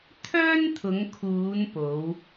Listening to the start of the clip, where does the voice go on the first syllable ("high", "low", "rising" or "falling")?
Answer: high